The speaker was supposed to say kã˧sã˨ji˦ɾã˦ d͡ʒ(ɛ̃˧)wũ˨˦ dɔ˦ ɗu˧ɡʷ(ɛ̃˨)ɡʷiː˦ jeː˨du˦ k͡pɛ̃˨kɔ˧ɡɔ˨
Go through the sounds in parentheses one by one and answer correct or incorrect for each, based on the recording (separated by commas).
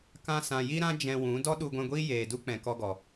correct, incorrect